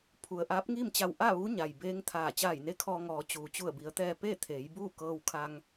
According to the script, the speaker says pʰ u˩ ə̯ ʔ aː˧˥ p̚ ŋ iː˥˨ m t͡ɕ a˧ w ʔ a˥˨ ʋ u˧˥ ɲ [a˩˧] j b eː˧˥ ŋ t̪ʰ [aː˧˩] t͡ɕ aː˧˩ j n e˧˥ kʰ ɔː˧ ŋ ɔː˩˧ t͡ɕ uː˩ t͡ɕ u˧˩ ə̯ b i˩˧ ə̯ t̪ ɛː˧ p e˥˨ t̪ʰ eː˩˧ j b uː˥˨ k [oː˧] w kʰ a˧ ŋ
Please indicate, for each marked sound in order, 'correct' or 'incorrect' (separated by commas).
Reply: incorrect, correct, incorrect